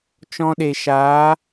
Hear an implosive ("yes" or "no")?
yes